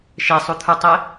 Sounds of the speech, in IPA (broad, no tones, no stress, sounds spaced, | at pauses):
ʃ e sˤ u t̪ʰ u tˤ e